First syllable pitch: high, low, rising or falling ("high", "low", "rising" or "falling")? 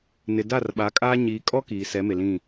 low